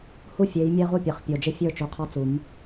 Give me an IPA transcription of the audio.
h u˦ fʲ e˨˦ j mʲ ɛ˦ ʁ u˦ pʲ ɛ˨˩ χ pʲ o˨˩ d͡ʒ ɪ˦ fʲ ə˞˥˨ t͡ʃ u˨˦ qʰ ɔ˥˨ t͡s u˨˩˦ m

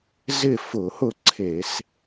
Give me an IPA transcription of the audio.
z ɪ˥˨ f ʊ˧˩˧ h ʊ˥˨ ǀʰ e˧˩˧ s

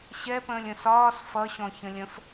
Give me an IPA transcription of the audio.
ɕ ɛ p ə̃ː lʲ ə̃ s ɒː s f ʌ ɕ ɔ̃ ç ə̃ lʲ ə̃ f

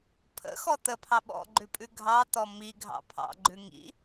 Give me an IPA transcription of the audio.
pʰ ə̰ x ɔ t̪ ə pʰ ɑ ɓ ɔ̰ ɡ͡ǃ ʉ pʼ ʉ ɡʱ ɑ t̪ ɔ m i ɡʱ ɑ̰ pʰ ɑ̰ ɡ͡ǃ ʉ ŋ ḭ

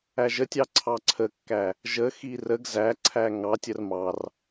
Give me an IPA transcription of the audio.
æ ʒ ə tʲ ɑ ǀʰ ɑ ǀʰ ə kː æ | ʒ ə x i r ə ɡ z æ ǀʰ æ ŋ ɑ tʲ ə r m ɑ r

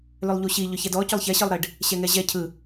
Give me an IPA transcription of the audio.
l ʏ lˠ ʎ u ɕ i ʎ ʏ ç ɛ d ɔ c ʏ lˠ ç ɛ ɕ ɯ lˠ ɾ e ɖ | ɕ ɛ ŋ ɛ ʑ ɛ cʰ ɯ

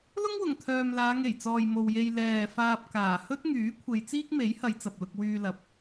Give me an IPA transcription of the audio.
l ʊ˥ ŋ w ʊ˨˩ ŋ t̪ʰ œː˨ m l aː˨˧ ŋ e˨˩ j t͡s ɔː˨ j m o˨ w j e˧ j l ɛː˨ f aː˧ p̚ k aː˨˩ h ɵ˥ t̚ ŋ yː˨˥ kʷʰ e˨˧ j t͡s iː˥ k̚ m e˨˥ j h ɐ˨˧ j t͡s ɐ˨ p̚ l ʊ˧ k̚ w yː˧ l ɐ˨˥ p̚

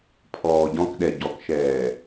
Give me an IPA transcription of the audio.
pʰ ɔː ɟ ɔ̃ k ɗ ɛ ɟ ɔ k ʃ ɛː

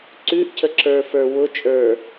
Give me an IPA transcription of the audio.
ǀ ʉ ʔ cʰ ə ǁ ə˞ f ə˞ w ʊ t͡ʃʼ ə˞

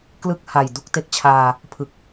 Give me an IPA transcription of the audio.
k l ɯ˥˩ k̚ h a˨˩ j d u˥˩ k̚ t e˦˥ k̚ t͡ɕʰ aː˧ | pʰ ɯ˨˩ k̚

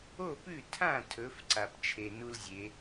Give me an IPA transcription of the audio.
o˥˩ p ʉ˥˩ tʰ ã˥˩ tʰ ɵ˨˦ f ǀ a˨ p t͡ʃʰ e˨ n u˦ l zʲ e˨˦

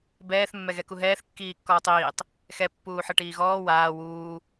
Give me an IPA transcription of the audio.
b ɛː θ mː ɛ ɣ ɛ k u ɦ ɛː θ kː iː kː ɔː tˤ iː tˤ | x ɛ pː uː ħ ɤ ʈ iː ɣ ɔː w aː w uː

